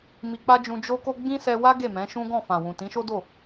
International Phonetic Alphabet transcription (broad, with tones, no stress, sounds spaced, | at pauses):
m i˧ k͡p a˦ d͡ʒ ũ˧ d͡ʒ o˦ k o˦ ɡ͡b ĩ˦ s ɛ˧ w a˦ ɡ e˦˨ m ɛ̃˨˦ ʃ ũ˦ ɡ ɔ̃˦˨ f ã˨ w ũ˨ t ĩ˨˦ ʃ o˦ d o˦˨